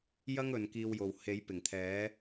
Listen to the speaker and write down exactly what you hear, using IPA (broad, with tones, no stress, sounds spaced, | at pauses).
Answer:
j ɐ˥ ŋ ɵ˨ n k iː˧ w j o˨ w h e˨˥ j p ɪ˨˩ ŋ t̪ʰ ɛː˨˥